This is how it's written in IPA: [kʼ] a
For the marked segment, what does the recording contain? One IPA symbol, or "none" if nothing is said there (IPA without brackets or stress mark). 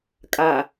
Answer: kʼ